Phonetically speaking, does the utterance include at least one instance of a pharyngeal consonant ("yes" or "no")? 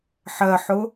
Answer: yes